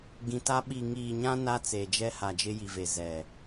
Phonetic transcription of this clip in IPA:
ɡĩ˨ta˦ ɓi˨ŋiː˨ɲã˦ na˦t͡se˨d͡ʒɛ˦ha˨ d͡ʒɪ˦ji˨ ve˨ zɛ˨

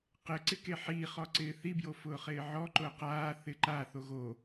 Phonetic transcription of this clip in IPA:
qɪ ǀɪkeħiː χɔǀɪːθi bjofʊːχɪːʕɔ ǃʊːqaː θɪǃa θoɣo

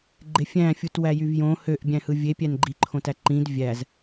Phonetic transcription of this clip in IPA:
ɡ͡ǃefʲæ̃fʲut wæjyvjõ høʔbʲæ̃hɯ vʲepʲæn ɡ͡ǃi ǃʰõtæǃĩd vʲæz

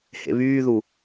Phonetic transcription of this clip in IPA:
hḛβyːðu

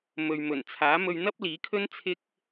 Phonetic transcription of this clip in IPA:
mɵ˨ɥ mɵ˨˩nt͡sʰaː˨˥ mɵ˧ɥn̪ɐ˥p̚liː˨˥kʰɵ˥n t͡sʰɪ˥k̚

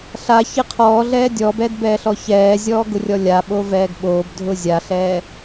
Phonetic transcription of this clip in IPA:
ɬaçɪ qʰɔːɮɛː dʲɔbɛːdbɛːɬɔ çɛːzʲɔːɡʊrʲɔ lʲaɓovɛːɡ ɓoːbdʱʊ zʲaɬɛː

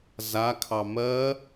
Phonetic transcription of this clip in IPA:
zakʰɑ mɜ

